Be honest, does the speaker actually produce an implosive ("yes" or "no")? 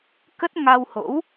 no